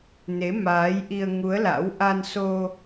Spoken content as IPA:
n e˨˦ m aː˨˦ j ʔ i˧ ə̯ ŋ u˨˦ ə̯ l a̰˧˥ w ʔ a˧ n s o˧

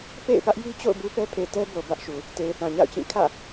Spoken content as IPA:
p ḛ˦˨ ɪ̯ p ä˦ ʔ j i˦ t͡ɕ o̰˦˨ ʊ̯ b u˦ p ɛ˦ pʰ e˨ t ɛ˦ b o˨ b ä˦ ʔ ʃ u˨ | t e˨ ɪ̯ θ ã˨ ɲ a̰˦˨ ʊ̯ t͡ɕ ĩ˦˨ kʰ ä̰˦˨

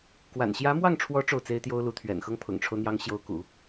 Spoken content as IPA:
k w a̰˨˩ n ɕ j ä˧˥ m w ɑ˥˩ ŋ ʈ͡ʂʰ w ɔ˧˥ ʈ͡ʂ o˥˩ ʊ̯ t͡s e˥ ɪ̯ t̪ j o˥ ʊ̯ l u˧˥ t̪ʰ ɥ ɛ̰˨˩ n x ɤ˥ ŋ pʰ ʊ̰˨˩ ŋ ʈ͡ʂʰ o˦ ʊ̯ n̪ j ɑ˧˥ ŋ ɕ j o˧˥ ʊ̯ k ṵ˨˩˦

